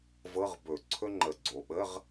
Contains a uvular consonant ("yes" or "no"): yes